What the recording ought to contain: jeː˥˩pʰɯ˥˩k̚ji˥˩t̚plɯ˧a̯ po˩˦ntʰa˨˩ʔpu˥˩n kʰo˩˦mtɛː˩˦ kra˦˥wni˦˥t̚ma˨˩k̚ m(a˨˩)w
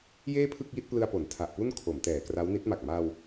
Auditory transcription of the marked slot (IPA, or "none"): a˧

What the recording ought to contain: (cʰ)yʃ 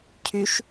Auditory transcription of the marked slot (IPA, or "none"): cʰ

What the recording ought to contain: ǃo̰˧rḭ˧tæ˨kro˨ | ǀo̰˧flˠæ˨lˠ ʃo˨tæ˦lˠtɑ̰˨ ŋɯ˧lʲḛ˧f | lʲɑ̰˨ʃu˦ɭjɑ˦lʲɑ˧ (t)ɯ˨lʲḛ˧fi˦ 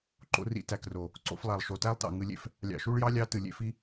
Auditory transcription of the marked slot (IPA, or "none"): t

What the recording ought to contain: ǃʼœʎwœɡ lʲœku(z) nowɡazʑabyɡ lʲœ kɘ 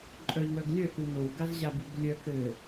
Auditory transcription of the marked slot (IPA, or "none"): none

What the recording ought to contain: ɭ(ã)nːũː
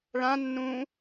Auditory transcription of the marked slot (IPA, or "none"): ã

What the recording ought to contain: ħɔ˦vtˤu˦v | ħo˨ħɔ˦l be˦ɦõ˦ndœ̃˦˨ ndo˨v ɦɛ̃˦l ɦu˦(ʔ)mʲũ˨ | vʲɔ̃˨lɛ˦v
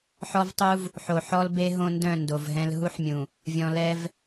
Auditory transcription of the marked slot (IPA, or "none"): ħ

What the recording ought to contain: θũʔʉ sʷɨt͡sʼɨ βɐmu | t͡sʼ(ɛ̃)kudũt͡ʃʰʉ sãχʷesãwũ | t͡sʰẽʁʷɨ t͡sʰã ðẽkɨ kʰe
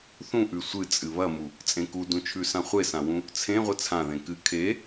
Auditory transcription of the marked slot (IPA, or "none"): ẽ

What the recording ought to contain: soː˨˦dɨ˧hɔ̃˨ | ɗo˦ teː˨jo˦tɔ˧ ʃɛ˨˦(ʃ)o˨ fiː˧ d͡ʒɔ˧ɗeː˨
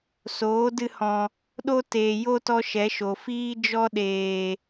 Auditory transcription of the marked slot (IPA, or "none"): ʃ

